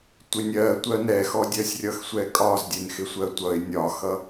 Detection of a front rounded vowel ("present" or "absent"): absent